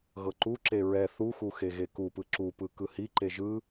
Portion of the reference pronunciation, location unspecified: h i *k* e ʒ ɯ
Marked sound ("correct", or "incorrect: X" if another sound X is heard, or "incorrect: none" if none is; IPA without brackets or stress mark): incorrect: ǃ